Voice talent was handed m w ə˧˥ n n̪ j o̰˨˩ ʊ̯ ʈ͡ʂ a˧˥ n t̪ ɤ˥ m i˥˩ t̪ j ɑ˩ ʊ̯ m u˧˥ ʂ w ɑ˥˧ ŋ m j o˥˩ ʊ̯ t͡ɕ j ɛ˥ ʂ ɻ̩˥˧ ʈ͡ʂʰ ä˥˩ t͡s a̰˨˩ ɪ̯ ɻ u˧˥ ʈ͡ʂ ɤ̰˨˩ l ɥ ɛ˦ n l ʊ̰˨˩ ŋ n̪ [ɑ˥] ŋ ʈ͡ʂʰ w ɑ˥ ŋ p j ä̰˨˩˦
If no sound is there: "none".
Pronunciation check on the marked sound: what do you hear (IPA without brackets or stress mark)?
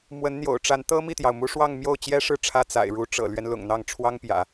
ɑ˥˩